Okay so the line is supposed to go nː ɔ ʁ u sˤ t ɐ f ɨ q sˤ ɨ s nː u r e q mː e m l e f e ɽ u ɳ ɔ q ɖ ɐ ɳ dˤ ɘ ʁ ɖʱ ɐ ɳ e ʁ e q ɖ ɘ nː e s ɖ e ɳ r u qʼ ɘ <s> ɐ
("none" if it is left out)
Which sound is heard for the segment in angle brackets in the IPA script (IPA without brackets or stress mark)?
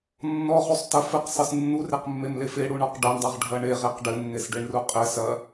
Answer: s